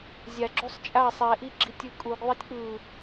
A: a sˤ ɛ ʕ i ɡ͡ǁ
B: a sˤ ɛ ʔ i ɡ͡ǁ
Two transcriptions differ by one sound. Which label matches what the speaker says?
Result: B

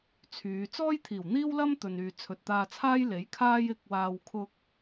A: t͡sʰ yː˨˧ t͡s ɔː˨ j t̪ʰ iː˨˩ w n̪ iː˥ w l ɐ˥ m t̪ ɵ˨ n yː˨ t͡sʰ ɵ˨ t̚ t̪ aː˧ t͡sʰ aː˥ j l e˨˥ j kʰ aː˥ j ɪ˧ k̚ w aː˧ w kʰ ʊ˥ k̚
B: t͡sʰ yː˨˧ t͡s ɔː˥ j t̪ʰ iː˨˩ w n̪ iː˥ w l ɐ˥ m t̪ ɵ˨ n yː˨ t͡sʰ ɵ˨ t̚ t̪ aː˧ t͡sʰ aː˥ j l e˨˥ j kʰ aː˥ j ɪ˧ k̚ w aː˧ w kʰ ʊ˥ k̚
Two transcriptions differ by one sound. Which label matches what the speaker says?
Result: B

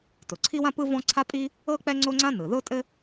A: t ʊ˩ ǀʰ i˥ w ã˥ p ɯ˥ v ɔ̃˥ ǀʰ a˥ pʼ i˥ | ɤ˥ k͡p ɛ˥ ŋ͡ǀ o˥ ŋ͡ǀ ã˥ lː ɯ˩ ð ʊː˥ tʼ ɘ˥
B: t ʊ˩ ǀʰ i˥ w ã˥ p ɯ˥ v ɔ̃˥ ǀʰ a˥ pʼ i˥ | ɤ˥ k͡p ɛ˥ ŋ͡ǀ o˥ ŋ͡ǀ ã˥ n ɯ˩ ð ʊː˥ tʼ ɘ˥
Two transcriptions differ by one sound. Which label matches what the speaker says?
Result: B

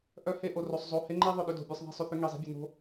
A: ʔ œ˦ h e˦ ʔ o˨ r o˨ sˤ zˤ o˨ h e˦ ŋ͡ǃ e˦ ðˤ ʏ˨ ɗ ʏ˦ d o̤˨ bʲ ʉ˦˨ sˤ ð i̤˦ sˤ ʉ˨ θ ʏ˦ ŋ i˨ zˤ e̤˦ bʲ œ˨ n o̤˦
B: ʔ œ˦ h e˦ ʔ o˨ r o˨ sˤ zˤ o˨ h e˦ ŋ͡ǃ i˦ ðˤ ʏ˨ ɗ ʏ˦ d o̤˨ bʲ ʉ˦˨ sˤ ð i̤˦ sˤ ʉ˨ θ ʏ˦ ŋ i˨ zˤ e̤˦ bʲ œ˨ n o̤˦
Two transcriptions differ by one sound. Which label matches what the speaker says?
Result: A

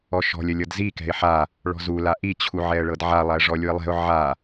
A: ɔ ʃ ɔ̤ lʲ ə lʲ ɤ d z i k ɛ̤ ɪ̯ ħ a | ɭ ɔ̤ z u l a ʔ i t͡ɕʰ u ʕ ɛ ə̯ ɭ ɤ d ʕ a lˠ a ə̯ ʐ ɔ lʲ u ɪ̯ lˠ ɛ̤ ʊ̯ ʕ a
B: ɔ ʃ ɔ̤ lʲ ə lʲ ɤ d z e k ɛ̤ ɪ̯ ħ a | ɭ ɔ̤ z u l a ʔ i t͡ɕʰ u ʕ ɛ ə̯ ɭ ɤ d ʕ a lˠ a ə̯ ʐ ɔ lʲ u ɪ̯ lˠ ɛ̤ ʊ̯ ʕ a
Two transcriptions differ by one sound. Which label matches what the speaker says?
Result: A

